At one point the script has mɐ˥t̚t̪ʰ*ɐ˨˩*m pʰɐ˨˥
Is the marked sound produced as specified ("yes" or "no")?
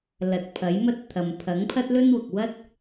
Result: no